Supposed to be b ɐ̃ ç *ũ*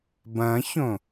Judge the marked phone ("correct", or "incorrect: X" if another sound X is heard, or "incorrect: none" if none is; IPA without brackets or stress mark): incorrect: õ